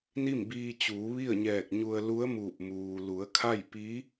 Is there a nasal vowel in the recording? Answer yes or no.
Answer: no